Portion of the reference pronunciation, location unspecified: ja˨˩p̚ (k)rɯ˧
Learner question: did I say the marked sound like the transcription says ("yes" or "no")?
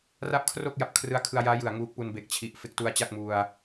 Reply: no